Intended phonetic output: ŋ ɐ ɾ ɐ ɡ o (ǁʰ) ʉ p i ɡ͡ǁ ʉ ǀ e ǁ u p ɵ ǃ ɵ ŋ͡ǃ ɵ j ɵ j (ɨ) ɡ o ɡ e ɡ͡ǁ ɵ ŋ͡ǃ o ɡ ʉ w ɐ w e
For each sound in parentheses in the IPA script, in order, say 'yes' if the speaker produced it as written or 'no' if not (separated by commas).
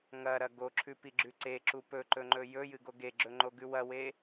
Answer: yes, yes